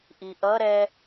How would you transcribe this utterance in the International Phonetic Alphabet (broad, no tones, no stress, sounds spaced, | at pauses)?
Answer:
ʔ i ʔ ʌ ɾ ɛ